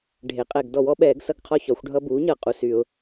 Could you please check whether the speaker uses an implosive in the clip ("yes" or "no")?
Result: yes